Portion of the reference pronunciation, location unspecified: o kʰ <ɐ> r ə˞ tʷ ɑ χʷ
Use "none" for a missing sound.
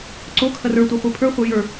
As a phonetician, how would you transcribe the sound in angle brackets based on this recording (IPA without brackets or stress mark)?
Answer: ɐ